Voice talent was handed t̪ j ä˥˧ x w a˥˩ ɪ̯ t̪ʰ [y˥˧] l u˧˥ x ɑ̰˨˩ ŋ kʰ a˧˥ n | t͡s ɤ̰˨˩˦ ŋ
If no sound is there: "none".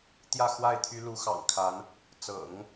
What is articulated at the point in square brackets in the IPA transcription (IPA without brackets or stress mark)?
y˥